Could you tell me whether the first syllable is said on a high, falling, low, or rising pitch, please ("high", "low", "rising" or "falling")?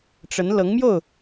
rising